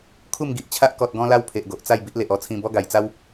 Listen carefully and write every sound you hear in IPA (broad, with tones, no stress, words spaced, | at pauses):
kʰu˥˧mɡi˨ʔt͡ɕʰa˦ʔ kɔ˨t̚ɡɔ̃˧la˧w pʰe˨ʔɡo˨ʔt͡sa˥˧j bi˦ʔle˨ʔ ɔ˥˧t͡sʰĩ˧ bɔ˦ɡa˨˩jt͡sa˦w